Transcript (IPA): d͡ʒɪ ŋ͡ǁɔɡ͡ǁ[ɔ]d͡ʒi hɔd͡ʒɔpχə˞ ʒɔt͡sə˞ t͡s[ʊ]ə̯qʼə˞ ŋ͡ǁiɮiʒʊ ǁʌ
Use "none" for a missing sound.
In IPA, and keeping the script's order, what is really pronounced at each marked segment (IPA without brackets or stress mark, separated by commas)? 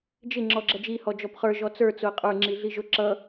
ʌ, ʊ